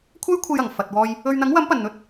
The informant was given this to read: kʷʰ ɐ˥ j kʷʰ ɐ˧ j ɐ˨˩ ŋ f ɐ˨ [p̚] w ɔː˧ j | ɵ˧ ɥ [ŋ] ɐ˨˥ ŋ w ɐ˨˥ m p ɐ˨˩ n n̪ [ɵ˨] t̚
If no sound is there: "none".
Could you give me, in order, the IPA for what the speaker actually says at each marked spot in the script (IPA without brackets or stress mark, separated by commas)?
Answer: t̚, n̪, ɵ˧